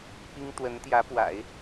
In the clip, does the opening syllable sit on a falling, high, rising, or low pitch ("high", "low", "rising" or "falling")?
high